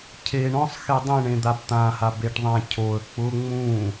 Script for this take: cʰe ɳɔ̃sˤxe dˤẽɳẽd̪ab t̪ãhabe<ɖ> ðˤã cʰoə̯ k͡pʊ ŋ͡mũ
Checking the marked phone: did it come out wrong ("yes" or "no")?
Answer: yes